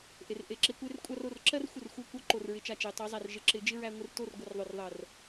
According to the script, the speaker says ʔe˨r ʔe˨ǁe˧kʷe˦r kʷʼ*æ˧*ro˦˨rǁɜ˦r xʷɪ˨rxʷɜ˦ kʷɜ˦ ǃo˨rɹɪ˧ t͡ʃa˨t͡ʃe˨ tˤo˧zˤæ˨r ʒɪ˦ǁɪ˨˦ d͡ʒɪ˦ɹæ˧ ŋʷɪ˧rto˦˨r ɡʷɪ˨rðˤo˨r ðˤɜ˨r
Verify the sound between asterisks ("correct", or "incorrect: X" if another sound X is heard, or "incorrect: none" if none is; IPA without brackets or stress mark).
incorrect: a˧